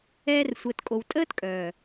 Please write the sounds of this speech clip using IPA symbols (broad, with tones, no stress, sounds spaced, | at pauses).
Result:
ɛː˧ r sʷ əː˨ t kʼ o˨ w tʼ əː˦ t kʼ œː˨